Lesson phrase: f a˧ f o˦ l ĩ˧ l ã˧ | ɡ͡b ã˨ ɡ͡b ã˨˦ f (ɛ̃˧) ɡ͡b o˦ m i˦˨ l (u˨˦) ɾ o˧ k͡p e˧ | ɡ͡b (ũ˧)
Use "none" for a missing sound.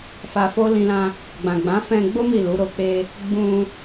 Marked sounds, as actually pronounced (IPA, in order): ɛ̃˧, u˨˦, ũ˧

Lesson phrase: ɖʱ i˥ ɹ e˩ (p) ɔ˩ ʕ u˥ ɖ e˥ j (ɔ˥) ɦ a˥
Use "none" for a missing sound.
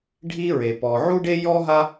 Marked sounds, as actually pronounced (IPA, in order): p, ɔ˥

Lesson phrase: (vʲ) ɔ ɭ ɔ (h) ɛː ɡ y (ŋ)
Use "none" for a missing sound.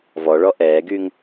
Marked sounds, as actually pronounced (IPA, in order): v, ʔ, ŋ

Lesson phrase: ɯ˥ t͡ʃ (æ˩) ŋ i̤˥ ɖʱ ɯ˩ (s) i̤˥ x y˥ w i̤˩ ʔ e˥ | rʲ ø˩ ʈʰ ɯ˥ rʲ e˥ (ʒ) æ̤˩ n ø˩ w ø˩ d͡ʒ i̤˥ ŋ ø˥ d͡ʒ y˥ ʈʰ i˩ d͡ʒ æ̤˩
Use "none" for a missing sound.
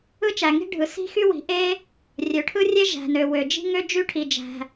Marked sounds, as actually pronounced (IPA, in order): æ˩, s, ʒ

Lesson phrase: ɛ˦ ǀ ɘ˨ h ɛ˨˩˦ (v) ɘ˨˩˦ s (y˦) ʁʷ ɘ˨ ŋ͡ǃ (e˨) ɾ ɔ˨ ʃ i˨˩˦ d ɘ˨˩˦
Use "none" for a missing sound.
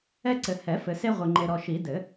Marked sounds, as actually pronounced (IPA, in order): f, e˦, e˨

